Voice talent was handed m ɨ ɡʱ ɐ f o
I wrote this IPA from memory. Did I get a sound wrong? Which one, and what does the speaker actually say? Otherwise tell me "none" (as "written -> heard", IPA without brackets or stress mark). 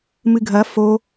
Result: none